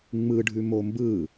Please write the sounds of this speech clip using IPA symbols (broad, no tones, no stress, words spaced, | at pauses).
ŋ͡mɯɖʱʉmo mbɯ